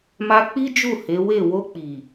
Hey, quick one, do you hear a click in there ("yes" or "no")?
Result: no